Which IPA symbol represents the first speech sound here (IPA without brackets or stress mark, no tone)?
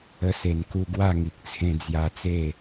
ə